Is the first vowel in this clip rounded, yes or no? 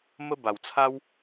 no